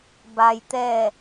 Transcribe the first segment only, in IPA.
b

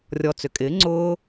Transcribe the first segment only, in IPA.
rʲ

